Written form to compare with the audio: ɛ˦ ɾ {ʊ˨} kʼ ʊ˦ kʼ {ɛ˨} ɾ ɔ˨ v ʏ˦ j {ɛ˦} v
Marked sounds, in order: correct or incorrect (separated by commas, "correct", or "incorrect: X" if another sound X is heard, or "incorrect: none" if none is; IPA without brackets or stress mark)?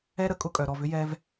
incorrect: ə˨, incorrect: œ˨, correct